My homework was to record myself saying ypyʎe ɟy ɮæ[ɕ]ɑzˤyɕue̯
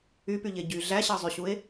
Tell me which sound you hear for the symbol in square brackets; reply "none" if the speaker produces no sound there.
ɕ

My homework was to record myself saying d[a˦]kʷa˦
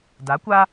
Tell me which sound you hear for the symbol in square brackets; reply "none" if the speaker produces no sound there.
a˨˦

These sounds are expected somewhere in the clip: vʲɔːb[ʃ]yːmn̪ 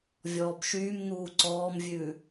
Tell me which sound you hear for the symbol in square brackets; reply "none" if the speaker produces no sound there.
ʃ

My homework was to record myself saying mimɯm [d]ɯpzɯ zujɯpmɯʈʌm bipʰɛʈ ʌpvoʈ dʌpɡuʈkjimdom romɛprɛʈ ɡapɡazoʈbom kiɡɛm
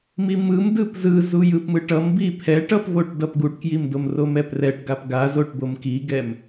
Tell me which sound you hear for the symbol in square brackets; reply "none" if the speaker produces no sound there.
d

